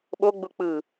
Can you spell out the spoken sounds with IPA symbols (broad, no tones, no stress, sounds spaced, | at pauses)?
ɓ o ɡ͡b u k͡p ɯ